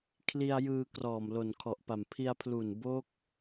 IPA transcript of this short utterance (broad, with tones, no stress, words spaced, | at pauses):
kʰli˧a̯jɯː˧ krɔː˨˩mlo˨˩nkʰɔ˨˩ʔpa˨˩m pʰi˧a̯pʰlu˨˩n bo˦˥k̚